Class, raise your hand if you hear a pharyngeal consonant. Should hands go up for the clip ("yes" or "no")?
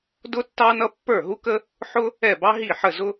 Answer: yes